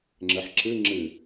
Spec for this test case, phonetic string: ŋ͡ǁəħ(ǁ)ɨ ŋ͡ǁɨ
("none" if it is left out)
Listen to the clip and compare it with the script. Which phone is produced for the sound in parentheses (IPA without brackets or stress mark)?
ǁ